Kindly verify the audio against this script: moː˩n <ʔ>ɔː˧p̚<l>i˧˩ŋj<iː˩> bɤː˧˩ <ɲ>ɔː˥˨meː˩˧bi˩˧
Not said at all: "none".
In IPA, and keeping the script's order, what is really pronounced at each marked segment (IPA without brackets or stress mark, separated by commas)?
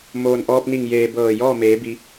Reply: ʔ, n, eː˩, j